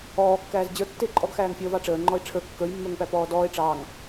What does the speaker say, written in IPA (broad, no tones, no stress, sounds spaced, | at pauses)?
ɔː kː æː z d͡ʑ ə˞ tː ɪː ǃʼ ɔ ɡ x æː ŋ fʲ əː v ɑ ʈ͡ʂ əː ŋ͡ǃ ɔ e̯ ʈ͡ʂʰ ə˞ kː ə˞ j mː ə˞ ŋ p æ p ɔː d ɔː e̯ ʈ͡ʂ ɑː ŋ